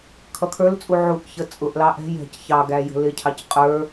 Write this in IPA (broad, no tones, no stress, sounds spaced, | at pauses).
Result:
kʰ ʌ kʰ ə˞ l t͡sʼ u ʕ u ʔ ç ə t͡sʼ ʊ ʔ l ɑ ʔ ɛ̤ j ɛ̤ c ç ɑ ɡ æ j ə̤ l ɪ cʰ ɑ c qʼ ə˞